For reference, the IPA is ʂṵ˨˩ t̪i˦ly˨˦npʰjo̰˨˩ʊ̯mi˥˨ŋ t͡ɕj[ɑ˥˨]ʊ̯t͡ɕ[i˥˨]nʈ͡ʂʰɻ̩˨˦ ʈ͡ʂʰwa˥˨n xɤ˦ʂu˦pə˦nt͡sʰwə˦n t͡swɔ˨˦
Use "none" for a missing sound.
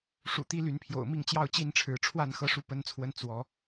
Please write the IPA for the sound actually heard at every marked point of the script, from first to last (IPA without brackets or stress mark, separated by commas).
ɑ˥˨, i˥˨